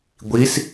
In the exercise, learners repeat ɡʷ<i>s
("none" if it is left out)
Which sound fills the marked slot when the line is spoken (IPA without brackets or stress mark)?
i